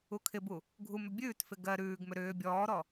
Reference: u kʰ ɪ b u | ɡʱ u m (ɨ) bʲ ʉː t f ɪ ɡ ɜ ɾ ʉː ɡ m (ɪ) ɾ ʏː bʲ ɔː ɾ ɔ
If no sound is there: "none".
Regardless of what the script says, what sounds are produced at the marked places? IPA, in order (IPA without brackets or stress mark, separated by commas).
ʏ, ʏ